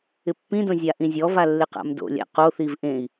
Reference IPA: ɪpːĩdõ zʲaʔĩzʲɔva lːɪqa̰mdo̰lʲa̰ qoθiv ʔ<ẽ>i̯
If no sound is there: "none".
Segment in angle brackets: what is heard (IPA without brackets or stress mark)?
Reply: ẽ